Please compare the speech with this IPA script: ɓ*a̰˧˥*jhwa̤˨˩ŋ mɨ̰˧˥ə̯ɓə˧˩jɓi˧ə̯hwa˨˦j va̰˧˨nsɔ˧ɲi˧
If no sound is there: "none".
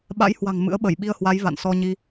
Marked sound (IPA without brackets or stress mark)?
a̰˧˥